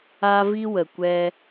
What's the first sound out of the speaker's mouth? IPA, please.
a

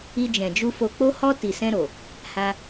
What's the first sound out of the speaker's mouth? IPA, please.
i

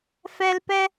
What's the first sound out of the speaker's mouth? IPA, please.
f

